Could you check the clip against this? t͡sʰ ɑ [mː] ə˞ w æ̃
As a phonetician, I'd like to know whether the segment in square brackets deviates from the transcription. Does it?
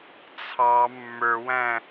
no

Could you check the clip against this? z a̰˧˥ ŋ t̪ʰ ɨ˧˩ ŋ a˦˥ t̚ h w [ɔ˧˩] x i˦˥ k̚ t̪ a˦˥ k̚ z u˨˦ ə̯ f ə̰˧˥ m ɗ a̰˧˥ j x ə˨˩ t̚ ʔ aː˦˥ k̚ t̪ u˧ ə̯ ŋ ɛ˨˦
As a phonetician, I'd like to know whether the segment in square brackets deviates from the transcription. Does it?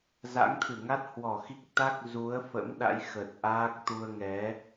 no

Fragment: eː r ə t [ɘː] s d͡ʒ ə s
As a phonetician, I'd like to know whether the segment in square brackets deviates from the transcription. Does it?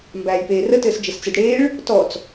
no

